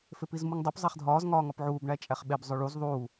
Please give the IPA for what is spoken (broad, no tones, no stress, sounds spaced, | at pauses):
f e p i z m u ŋ dˤ u p zˤ æ χ dʱ ɒː z ŋ ɒː ŋ ɒ p ʕ uː b ɳ æ t͡ʃʼ æ χ ɓ e b zˤ o ɭ u z ðˤ uː